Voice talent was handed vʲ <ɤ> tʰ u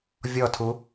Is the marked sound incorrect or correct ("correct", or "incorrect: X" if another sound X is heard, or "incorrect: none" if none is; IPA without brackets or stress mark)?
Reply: incorrect: ɔ